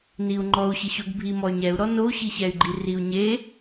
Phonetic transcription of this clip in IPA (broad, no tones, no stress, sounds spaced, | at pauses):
n i u̯ ŋ͡ǃ ɔ u̯ ɕ ɪ ɕ o ɡ bʱ i m ɔ y̯ ɲ ɛ u̯ ɾ ɔ n o u̯ ɕ i ɕ ɛ y̯ ɡ͡ǃ i r i u̯ ɲ e